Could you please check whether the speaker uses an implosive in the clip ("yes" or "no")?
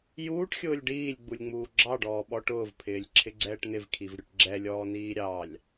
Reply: yes